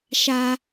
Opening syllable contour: high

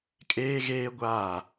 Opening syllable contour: high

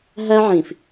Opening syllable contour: high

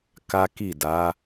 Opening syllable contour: high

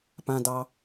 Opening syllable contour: low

